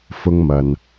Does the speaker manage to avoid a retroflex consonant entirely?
yes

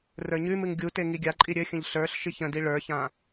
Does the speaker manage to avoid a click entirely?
no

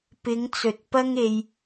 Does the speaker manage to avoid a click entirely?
yes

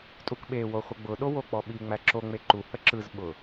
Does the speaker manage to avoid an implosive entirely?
no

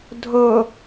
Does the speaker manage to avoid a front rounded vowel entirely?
yes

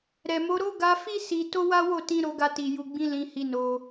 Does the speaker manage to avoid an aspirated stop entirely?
yes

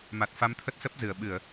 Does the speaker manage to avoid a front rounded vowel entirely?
yes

